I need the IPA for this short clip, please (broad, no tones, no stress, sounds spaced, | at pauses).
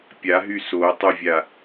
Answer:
pʲ a ɦ y s o tˤ y vʲ a